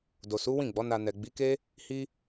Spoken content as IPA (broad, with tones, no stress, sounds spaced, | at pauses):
d o˨ s u˨˦ w ĩ˦˨ ɡ͡b ɔ˨˦ n a˧ n ɛ˨ ɡ͡b i˨˦ k e˦ | h i˦